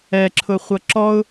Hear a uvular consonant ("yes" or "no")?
yes